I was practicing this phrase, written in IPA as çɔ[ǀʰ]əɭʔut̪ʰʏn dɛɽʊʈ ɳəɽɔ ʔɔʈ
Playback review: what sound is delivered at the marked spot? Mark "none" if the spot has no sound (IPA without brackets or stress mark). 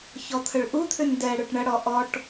t̪ʰ